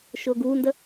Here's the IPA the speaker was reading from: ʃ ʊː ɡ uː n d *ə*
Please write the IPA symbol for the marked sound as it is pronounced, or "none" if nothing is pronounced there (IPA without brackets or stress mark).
ə